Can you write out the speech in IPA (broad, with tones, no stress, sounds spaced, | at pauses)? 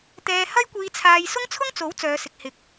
t̪ ɛː˧ h ɐ˥ j kʷ iː˧ t͡sʰ aː˧ j s ʊ˥ ŋ t͡sʰ ʊ˥ ŋ t͡s o˨˥ w t͡s œː˨˧ s ɪ˨ k̚ h ɪ˨˥ k̚